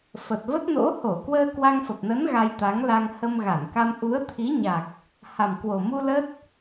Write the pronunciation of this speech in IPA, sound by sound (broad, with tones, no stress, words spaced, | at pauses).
fə˨˩t̚və˦˥t̚no̰˧˥ ho˧˩ kwəː˧kwa˧ŋfə˨˩p̚nə˨˦n ɣa˧jt̪a˨˦ŋla˧ŋ hə˧mɣa˧˩nka˧m ʔu˨˦ə̯t̪ʰi˨˦ɲa˨˩k̚ | ha˨˩mkwo˨˩mu˧ lə˦˥t̚